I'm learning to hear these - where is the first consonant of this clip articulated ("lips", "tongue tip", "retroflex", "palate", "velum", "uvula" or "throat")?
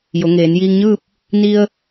palate